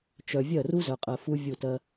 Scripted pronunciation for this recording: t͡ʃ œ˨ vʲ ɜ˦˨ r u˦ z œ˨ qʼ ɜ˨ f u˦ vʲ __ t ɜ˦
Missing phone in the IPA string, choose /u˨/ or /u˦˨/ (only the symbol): u˦˨